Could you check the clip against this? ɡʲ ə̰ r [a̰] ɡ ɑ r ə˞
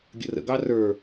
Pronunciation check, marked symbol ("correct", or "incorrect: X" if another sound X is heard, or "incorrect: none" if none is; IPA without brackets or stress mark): incorrect: ə̰